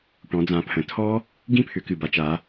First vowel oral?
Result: no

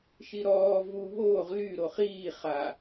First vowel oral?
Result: yes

